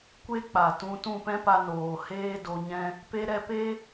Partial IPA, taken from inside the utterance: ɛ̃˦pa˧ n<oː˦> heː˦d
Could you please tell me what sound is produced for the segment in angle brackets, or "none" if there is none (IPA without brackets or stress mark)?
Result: oː˨